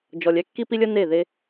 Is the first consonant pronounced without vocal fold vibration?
no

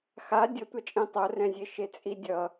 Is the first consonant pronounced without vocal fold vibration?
yes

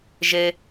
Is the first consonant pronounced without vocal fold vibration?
no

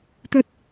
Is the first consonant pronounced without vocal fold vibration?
yes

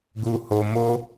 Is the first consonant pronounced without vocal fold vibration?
no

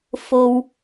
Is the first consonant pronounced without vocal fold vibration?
yes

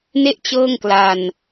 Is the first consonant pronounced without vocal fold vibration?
no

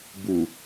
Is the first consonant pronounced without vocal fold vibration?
no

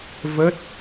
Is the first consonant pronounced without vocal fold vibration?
no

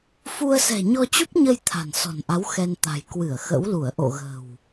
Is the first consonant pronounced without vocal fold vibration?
yes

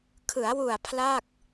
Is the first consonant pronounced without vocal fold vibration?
yes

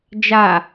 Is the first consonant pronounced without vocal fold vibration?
no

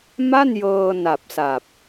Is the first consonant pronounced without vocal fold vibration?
no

